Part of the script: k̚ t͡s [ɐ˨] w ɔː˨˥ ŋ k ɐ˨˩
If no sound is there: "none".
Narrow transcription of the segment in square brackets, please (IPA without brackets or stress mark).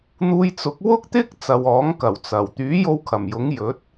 ɐ˨